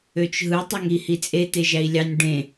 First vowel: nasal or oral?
oral